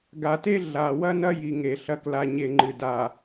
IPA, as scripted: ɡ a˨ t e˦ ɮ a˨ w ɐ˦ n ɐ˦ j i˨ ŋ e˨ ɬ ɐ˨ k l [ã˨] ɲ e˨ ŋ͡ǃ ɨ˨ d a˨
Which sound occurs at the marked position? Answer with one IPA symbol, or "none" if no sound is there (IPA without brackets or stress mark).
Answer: a˨